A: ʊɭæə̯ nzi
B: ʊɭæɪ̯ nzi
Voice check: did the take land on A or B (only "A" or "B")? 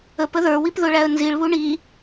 A